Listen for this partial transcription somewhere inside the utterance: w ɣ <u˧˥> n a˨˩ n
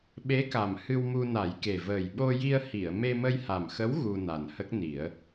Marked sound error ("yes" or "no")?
yes